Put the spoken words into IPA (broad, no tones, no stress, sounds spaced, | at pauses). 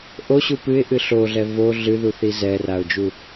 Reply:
ʔ o ɕ u p ɨ ɪ̯ ʔ ɨ ɬ o ɮ ɛ v o ɮ ɨ ð u θ i z ɛ r a ʊ̯ d͡ʒ u